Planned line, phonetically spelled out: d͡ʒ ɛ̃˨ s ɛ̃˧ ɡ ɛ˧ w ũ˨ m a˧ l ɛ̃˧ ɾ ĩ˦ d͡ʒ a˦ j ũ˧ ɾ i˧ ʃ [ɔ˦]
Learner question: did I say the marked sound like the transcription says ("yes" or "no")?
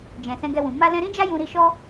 yes